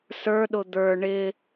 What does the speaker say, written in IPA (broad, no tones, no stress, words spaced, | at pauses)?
sə˞ɗʊ d̪ə˞ ɳɪ